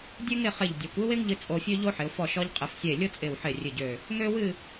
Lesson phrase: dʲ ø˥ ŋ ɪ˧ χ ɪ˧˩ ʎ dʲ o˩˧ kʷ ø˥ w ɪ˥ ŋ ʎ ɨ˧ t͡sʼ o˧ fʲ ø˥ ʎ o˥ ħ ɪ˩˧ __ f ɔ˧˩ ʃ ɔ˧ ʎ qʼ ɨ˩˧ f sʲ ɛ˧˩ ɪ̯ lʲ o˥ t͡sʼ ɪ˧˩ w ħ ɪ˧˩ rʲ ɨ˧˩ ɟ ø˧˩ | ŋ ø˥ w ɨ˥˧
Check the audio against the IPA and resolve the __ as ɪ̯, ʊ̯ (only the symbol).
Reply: ʊ̯